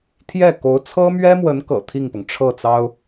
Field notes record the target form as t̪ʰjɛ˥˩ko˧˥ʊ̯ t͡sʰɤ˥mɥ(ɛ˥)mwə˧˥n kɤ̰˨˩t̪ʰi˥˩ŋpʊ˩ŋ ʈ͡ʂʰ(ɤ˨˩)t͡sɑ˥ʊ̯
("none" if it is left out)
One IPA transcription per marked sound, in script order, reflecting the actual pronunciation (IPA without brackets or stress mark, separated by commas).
ɛ˥, ɤ˥˩